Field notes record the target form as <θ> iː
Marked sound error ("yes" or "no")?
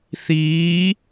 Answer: no